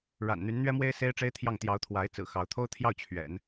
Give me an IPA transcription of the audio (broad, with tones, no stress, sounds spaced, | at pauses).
ɻ a̰˨˩ n n̪ y˧˥ n n̪ ɥ ɛ˥ m w e˥ ɪ̯ s e˥ ɪ̯ ʈ͡ʂ e˥ ɪ̯ t̪ʰ j ɑ˥˩ ŋ t̪ j ɑ˧˥ ʊ̯ t̪ʰ w a˧˥ ɪ̯ t͡s ɹ̩˨˩ x ɑ˧˥ ʊ̯ t̪ʰ o˥ ʊ̯ t̪ʰ j ɑ˥˩ ʊ̯ t͡ɕʰ ɥ ɛ̰˨˩˦ n